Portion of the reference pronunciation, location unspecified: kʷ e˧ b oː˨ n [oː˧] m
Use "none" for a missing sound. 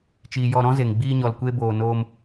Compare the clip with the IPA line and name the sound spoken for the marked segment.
oː˧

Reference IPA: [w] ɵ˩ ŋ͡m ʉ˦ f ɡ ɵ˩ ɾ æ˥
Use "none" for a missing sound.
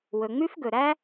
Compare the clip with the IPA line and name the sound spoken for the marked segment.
w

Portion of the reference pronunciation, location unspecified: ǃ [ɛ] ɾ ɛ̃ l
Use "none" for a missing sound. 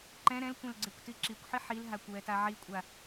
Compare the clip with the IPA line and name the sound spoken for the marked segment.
ɛ̃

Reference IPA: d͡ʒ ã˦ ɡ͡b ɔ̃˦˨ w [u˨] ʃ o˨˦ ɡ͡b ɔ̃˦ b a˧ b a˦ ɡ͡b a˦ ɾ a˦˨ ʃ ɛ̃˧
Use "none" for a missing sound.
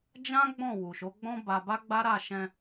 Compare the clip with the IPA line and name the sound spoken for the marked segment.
u˨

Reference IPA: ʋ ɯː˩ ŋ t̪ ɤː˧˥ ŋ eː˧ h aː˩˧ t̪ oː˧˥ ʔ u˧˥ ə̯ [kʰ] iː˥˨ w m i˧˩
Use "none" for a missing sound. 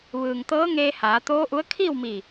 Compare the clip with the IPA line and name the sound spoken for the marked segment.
kʰ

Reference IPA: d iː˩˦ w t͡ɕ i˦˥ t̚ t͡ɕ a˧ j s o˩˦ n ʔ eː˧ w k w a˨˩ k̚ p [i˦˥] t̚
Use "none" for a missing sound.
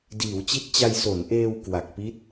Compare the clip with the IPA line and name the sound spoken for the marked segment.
i˦˥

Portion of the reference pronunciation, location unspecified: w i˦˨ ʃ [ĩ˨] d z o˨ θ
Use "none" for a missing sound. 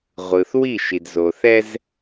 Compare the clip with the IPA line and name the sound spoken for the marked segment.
i˨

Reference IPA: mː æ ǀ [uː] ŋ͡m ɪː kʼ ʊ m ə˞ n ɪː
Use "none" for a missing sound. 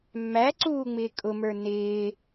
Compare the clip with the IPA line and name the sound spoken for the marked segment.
uː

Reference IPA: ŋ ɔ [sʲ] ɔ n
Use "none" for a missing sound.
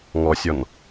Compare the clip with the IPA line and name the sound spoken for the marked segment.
sʲ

